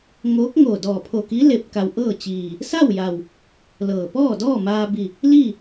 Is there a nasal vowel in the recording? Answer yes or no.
no